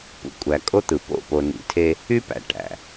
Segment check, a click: absent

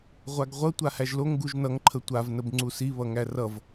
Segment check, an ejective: absent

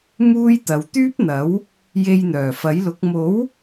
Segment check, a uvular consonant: absent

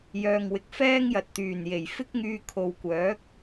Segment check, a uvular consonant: absent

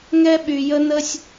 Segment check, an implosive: present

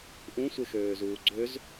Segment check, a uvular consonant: absent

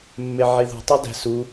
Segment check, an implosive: absent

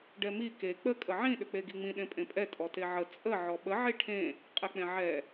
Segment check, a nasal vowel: present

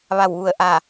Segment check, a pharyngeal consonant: absent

